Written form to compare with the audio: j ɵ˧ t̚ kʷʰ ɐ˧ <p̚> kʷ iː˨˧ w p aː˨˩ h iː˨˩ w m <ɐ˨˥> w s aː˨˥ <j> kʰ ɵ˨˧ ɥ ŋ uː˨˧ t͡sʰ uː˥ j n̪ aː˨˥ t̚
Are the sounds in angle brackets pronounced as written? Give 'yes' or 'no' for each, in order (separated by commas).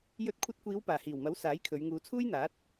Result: no, yes, yes